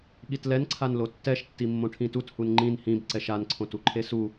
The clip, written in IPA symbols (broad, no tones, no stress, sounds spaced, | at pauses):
ɠ i t l ɛ n ǀʰ a n l o tː ɛ ʃ tː i mː õ ʈʰ ĩ t u t h u n ŋ͡ǃ ĩ n h ĩ b ǀ ɛ ʃ a n ǀʰ õ t u ǃʰ e s u